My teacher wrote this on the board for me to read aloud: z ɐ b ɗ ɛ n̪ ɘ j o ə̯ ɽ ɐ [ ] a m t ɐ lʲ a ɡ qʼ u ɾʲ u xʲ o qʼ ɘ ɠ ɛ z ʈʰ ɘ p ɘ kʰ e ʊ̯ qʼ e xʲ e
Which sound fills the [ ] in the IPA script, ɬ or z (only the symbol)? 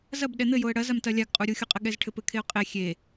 z